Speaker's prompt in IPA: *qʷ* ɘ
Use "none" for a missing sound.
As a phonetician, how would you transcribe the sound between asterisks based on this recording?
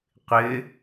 qʷ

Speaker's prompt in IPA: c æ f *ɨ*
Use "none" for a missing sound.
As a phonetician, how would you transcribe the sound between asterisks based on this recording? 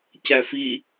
i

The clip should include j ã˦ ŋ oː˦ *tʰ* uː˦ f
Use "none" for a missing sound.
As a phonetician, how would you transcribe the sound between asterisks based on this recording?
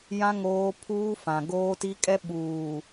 pʰ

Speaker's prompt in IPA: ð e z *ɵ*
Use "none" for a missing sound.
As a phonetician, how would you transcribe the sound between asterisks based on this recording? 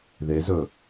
ɵ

